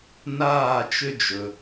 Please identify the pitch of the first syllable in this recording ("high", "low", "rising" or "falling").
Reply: falling